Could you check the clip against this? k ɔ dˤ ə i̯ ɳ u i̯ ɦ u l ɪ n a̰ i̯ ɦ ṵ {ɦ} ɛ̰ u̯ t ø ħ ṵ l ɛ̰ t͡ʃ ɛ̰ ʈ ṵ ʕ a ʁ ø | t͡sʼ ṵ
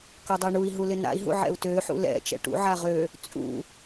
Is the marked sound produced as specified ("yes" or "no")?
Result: no